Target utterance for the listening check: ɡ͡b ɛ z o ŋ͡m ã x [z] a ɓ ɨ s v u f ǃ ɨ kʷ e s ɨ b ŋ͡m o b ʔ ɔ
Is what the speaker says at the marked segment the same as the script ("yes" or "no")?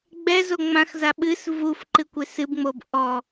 yes